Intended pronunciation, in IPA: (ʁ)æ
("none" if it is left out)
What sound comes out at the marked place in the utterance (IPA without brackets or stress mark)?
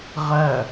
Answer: ʁ